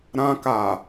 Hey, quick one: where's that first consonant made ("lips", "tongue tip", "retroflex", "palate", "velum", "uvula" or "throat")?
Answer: tongue tip